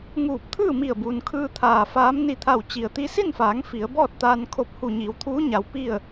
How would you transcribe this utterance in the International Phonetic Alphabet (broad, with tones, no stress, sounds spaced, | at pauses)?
ŋ uː˧˩ p̚ t̪ʰ ɯː˥˨ m i˧˩ ə̯ b uː˩ n kʰ ɯː˧ t̪ʰ aː˧˩ f aː˧˥ m n i˧˩ t̪ʰ a˧˩ w t͡ɕ i˩ ə̯ t̪ i˧ s i˥˨ n f aː˩˧ ŋ f i˩˧ ə̯ b ɔː˥˨ t̚ t̪ aː˧ n kʰ o˧˥ p̚ h u˧˩ ɲ iː˩˧ w t̪ʰ uː˧˥ ɲ a˩˧ w p i˥˨ ə̯